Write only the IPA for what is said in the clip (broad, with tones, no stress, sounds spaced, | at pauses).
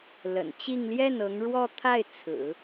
l ə̰˨˩ n t͡ɕ i˥˧ ŋ l j ɛ˥˩ n ɤ˧˥ ŋ ɻ w ɔ˥ t̪ʰ a˥˩ ɪ̯ t͡sʰ ɹ̩˨˩˦